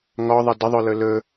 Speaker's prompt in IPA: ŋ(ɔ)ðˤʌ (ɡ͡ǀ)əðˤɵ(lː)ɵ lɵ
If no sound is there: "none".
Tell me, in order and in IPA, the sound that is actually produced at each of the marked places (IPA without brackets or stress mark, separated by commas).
ɔ, d, l